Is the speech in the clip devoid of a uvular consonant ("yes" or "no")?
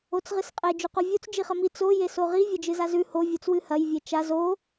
no